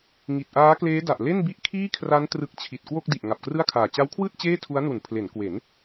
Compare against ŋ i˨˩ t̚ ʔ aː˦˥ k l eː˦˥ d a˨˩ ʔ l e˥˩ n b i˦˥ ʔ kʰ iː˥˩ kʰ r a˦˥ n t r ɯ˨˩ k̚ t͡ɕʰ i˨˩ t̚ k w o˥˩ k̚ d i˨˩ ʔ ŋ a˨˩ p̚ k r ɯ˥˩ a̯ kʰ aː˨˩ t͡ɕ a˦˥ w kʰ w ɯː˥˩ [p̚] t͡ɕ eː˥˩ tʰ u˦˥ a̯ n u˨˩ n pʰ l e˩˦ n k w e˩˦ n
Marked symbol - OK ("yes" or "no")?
no